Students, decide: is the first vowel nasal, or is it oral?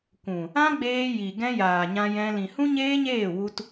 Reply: nasal